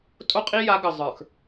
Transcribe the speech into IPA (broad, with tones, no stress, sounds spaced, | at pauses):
tʼ o˦ qʼ i˦ j a˨˦ ɡ ə˨ zˤ ə˞˨ x